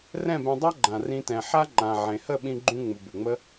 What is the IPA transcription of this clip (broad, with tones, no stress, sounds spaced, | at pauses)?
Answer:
r ɛ̃˦˨ b ɛ̃˧ dˤ a˦ ɡ͡ǃ ã˨ r ĩ˧ t ɛ̃˨ ħ a˦ ŋ͡ǃ ã˨ ʕ ẽ˨ h ə˦˨ ɓ ĩ˧ ɡ͡ǃ ũ˧ ŋ͡m u˨ b u˨ ŋ͡m ə˦